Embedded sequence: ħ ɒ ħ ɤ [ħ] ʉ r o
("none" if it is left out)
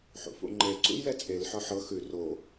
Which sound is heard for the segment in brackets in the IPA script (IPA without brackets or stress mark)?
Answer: x